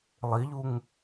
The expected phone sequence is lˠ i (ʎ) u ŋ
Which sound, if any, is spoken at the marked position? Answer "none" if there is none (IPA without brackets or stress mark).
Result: ʎ